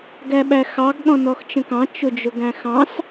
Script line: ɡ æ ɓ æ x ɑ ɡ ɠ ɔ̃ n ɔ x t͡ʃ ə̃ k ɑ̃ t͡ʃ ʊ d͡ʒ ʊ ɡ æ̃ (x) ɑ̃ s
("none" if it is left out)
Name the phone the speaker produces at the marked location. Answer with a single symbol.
x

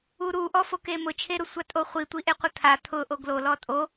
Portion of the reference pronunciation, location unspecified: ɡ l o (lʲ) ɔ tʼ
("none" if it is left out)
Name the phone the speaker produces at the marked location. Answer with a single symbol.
l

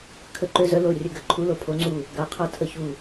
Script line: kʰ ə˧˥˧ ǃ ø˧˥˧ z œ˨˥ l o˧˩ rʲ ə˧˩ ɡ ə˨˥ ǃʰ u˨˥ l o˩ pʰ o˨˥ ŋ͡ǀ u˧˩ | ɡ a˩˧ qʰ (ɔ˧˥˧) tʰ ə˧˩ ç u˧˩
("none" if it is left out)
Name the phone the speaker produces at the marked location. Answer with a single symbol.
ɔ˨˥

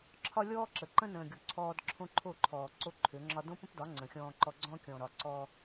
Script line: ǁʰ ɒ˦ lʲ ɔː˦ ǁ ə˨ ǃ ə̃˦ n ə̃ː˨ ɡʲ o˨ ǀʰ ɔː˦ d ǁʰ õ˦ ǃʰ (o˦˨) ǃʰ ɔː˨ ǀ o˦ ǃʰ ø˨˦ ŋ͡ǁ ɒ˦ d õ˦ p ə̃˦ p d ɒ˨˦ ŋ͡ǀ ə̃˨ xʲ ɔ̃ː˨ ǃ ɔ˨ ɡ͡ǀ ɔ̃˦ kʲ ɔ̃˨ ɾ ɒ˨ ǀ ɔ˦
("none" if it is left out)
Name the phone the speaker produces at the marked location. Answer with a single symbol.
o˦˨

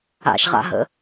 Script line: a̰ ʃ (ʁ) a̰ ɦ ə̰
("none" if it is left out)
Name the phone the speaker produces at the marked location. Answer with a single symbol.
ʁ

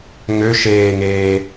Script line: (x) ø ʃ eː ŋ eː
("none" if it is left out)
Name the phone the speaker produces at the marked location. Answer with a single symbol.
ŋ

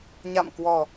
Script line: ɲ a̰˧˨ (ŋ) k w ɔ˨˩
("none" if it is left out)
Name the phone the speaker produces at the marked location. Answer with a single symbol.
m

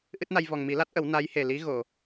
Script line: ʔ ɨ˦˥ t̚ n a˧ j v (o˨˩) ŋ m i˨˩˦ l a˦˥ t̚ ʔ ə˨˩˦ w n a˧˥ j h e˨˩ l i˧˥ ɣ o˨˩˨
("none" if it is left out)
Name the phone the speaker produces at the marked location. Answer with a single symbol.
ɔ˨˩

